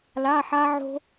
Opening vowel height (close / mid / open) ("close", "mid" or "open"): open